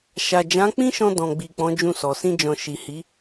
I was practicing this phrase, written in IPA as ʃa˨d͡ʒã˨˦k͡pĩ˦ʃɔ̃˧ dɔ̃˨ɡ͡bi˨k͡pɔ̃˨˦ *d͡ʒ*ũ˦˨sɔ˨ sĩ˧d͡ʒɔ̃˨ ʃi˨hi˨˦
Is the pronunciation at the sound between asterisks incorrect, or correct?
correct